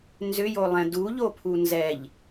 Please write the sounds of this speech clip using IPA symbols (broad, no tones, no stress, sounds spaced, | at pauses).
n z ʏ j o lˠ ɛ̃ d u ʎ o pʰ u n z ɛ ʎ